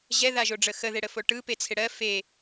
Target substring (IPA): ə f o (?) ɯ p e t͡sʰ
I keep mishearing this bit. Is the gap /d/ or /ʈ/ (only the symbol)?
ʈ